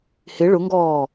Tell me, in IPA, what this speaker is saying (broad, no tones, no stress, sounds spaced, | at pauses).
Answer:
h ɪ ɭ ʊ ŋ ɡ ɔː